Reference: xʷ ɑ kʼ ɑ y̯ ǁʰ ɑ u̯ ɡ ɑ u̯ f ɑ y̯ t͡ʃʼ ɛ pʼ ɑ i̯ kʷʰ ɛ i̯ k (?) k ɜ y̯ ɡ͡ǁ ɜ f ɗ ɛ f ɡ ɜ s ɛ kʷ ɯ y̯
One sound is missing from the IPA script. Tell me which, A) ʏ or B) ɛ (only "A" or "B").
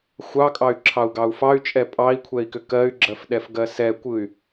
A